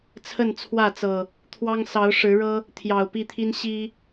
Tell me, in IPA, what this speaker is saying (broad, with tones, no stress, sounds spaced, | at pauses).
t͡sʰ ə˥˨ n t͡sʰ w ä˥˨ t͡s ɤ˨˩ | t̪ʰ w ɑ˦ ŋ s ɑ˨˦ ʊ̯ ʂ ɻ̩˨˦ ɻ ɤ˦ | t̪ʰ j ɑ˨˩ ʊ̯ p i˥˨ t̪ʰ i˦ n ɕ i˦